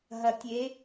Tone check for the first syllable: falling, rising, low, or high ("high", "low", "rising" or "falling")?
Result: low